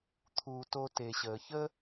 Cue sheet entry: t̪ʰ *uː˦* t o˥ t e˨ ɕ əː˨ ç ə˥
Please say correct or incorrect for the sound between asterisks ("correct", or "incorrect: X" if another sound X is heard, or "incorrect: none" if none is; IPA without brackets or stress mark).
correct